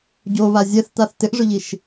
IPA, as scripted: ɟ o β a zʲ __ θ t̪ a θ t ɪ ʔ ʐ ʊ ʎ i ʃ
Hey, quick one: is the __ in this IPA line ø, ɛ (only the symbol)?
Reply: ɛ